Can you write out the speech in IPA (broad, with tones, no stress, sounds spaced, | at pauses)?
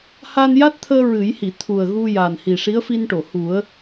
h a˧ n j a˦˥ t̚ t̪ʰ əː˧ ɹ ɨ˨˩˦ j h i˨˩˨ t̪ʰ u˨˩ ə̯ ɣ u˧ j a˨˩ n h i˨˩ ʂ i˧˥ ə̯ f i˧ n ʈ o˨˩˨ h u˨˩˦ ə̯